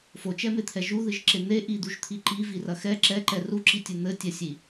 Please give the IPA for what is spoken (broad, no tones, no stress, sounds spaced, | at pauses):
f o t͡ʃ ɛ m e t̪ʰ ɛ ʒ u ð ɨ ʒ ǁ e n̪ e ʔ i d̪ u ʒ t̪ʰ i ǃ i v i r ɐ x ɛ ǁ ɛ ǃ ɛ r u ǁ i tʲ ɨ n̪ ɘ tʲ ɛ sʲ i